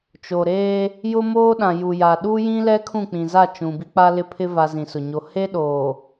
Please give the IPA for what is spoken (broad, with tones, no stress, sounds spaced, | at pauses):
t͡ʃ o˨ ɾ eː˦ | j ʊ˦ m oː˦ ɗ ã˨ j u˨ j a˨ ɗ u˦ j ĩ˦ l ɛ˦ kʰ ũ˦˨ k͡p ĩ˨ z a˦˨ t͡ʃ ũ˨ b i˦ k͡p a˦ l ɪ˦ pʰ ɪ˦ v a˦ z ĩ˨ s ʊ˨ ɲ o˦ h e˦ ɗ oː˨